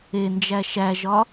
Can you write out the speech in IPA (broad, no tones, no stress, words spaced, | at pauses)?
end͡ʒæ ʃæʒɒ